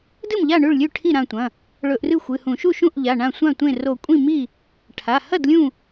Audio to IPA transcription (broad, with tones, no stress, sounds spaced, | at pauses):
d ɨ˥˩ m ʎ a˥˩ ɳ ʉ˥˩ ɭ lʲ ʉ˥˩ ʈʰ i˥˩ ɾ ã˥˩ tʷ ɐ̃˩˧˩ | ɭ ɵ˧˩˧ ʔ r ɨ˥˩ xʷ ɨ˩˧˩ h ũ˧˩˧ ʃ u˥˩ ʃ ũ˥˩ ʔ ʎ a˩˧˩ ɳ ã˥˩ sʷ ã˥˩ tʷ ẽ˥˩ r o˧˩˧ kʷʼ ĩ˥˩ m i˥˩ | ʈʰ a˩˧˩ h ɐ˥˩ d lʲ ũ˥˩